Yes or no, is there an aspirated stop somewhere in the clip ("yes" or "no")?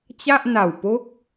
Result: no